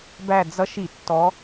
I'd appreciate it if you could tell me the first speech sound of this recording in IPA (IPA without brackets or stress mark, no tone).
b